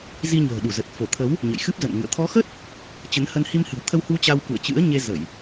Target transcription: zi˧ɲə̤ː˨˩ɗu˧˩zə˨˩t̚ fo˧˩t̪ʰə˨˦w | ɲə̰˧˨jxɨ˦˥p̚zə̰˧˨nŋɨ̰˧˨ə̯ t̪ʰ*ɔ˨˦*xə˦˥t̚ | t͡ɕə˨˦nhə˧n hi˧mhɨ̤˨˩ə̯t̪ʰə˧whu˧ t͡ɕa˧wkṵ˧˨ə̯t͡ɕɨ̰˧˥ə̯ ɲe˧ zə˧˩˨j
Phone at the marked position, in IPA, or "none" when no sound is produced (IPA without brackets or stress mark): ɔ˨˦